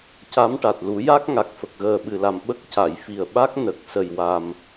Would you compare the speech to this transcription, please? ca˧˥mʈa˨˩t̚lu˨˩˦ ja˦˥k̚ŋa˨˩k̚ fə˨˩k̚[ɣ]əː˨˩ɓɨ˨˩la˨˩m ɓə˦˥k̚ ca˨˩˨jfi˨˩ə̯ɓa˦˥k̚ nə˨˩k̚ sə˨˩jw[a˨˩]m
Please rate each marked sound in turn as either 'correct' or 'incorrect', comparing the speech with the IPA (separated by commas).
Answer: correct, correct